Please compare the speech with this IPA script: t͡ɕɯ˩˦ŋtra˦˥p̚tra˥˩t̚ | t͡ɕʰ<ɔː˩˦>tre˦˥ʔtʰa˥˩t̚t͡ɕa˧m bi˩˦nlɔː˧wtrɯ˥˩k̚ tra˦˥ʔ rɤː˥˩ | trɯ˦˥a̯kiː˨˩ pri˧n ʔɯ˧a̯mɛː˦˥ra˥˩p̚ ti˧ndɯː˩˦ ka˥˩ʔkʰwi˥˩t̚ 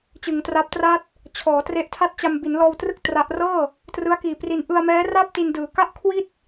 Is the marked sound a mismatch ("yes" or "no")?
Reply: no